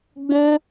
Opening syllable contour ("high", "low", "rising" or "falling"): high